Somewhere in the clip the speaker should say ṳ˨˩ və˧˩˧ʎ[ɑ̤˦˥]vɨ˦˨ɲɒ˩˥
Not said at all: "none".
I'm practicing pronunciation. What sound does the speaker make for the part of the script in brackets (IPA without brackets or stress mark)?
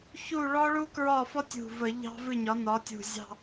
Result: ɑ̤˦˥